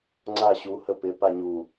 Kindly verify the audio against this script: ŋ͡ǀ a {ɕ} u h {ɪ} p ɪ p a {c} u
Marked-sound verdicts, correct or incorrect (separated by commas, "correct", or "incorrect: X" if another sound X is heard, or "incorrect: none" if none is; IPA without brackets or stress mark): correct, incorrect: ə, incorrect: ɲ